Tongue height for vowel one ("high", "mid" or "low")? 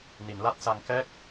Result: high